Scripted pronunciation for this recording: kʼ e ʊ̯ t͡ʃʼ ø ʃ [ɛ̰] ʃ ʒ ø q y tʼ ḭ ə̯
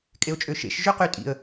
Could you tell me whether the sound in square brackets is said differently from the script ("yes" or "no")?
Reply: yes